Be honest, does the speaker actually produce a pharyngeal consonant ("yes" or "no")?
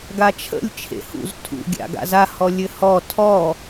no